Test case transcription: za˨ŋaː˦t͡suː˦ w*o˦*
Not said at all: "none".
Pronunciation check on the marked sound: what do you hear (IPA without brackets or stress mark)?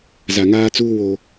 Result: o˦